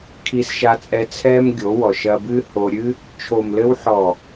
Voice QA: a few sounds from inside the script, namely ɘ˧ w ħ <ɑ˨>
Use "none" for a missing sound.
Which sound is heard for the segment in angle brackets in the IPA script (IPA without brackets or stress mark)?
ɔ˨